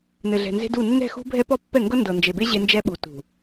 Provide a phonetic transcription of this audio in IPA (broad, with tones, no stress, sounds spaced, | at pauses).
n ɘ˨ ɮ ɛ̤˨ n z e̤˦ d u˦˨ nː ɛ̤˦˨ x ṳ˦ bʱ ɛ˦ p ɔ˦ pː ɛ˦˨ ŋ ɡ ɤ˦ n d ɤ˨ n d͡ʒ e˨ b e˦ ʑ e˦ n d͡ʒ ɛ˦ ɓ u˨ t ṳ˨